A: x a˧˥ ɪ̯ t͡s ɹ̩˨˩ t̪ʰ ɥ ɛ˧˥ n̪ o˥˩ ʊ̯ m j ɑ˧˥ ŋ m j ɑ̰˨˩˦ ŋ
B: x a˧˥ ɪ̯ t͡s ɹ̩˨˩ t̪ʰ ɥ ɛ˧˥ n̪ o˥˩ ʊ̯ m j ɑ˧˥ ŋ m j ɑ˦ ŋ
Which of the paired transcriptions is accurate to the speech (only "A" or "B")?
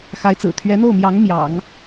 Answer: A